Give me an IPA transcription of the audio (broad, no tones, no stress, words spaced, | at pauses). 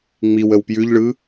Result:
ŋ͡miw əwpjʉʎɭɯ